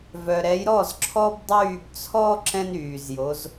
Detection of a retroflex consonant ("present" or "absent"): absent